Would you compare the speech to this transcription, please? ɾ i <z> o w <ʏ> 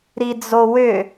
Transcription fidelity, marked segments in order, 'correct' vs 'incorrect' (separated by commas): incorrect, correct